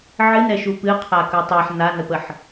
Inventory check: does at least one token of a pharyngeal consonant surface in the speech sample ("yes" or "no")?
yes